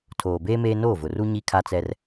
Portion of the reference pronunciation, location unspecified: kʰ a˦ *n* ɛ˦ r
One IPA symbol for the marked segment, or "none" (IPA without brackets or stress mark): t͡s